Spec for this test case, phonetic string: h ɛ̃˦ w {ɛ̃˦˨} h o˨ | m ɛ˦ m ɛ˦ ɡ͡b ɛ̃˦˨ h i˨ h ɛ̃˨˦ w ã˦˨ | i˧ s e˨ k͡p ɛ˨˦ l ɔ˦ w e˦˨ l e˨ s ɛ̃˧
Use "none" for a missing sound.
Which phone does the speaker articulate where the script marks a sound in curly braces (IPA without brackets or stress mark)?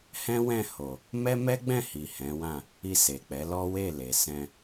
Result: ɛ̃˦˨